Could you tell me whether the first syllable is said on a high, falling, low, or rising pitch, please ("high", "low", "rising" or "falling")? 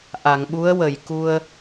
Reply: low